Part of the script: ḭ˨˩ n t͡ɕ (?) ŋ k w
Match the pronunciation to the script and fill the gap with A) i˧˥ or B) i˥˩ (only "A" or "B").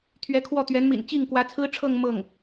B